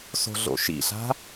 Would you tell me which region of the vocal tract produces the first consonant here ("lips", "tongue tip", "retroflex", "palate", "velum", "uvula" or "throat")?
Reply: tongue tip